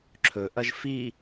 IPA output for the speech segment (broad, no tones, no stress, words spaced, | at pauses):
ǁʰɵʔɐʒ fi